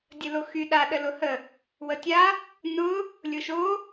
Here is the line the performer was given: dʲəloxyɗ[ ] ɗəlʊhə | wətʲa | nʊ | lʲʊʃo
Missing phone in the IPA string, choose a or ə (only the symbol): a